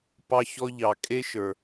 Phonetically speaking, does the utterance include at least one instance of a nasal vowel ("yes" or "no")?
no